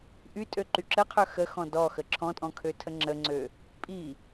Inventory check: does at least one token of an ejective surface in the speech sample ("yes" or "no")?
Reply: yes